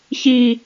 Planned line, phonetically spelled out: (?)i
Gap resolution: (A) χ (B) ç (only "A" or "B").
B